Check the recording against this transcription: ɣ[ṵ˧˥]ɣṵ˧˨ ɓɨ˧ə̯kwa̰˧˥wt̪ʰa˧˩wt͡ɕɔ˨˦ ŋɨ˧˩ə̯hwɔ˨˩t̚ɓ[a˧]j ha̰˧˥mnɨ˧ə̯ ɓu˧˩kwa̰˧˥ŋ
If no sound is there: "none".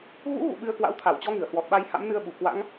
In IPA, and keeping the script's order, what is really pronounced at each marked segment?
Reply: ṵ˧˥, a˧

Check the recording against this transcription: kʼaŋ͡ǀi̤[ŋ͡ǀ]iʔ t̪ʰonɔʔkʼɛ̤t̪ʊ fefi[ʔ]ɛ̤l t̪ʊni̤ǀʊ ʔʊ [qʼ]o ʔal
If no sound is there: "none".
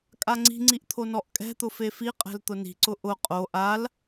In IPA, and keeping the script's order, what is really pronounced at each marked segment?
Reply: ŋ͡ǀ, qʼ, qʼ

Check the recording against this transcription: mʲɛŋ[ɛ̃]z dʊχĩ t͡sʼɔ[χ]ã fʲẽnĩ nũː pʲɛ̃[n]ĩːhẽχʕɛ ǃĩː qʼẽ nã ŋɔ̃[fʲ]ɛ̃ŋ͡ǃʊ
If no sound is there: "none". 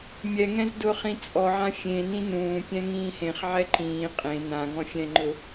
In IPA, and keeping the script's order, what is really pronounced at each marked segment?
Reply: ɛ̃, ʕ, ŋ, fʲ

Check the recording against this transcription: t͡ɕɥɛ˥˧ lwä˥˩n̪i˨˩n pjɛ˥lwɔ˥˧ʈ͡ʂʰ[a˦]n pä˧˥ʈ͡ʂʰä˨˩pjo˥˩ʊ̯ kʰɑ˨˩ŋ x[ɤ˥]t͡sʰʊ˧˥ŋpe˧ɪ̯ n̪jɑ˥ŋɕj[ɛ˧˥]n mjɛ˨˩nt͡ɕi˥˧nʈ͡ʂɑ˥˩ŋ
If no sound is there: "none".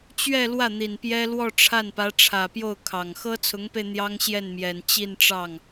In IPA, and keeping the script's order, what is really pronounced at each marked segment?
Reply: a˥˩, ɤ˥, ɛ˥˩

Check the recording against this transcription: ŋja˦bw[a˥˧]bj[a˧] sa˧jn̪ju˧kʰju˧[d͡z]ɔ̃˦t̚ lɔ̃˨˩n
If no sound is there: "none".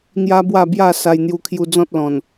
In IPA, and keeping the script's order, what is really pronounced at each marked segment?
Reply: a˥˧, a˥˧, d͡z

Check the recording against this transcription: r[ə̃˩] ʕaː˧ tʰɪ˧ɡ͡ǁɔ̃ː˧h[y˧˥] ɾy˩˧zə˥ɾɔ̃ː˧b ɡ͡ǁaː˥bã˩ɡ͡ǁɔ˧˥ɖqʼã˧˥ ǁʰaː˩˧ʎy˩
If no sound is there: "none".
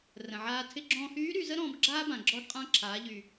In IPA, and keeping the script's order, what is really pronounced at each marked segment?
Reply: ə̃˩, yː˧˥

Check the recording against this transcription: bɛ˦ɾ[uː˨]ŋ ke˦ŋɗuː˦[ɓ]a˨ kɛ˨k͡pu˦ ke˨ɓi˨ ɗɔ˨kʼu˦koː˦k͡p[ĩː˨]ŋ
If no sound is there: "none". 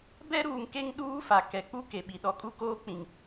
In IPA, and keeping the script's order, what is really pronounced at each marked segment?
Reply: uː˨, f, ĩ˨

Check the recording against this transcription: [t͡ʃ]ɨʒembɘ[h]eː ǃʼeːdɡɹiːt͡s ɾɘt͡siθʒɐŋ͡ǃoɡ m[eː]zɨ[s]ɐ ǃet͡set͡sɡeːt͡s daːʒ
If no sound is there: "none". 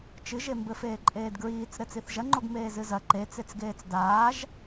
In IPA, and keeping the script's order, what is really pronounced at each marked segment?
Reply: t͡ʃ, f, eː, z

